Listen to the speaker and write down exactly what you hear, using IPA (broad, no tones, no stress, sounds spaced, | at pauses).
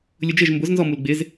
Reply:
lʲ ʊ d͡ʒ ɪ ʒ m b ʊ z n z ɔ m u l ɡ͡b ɪ z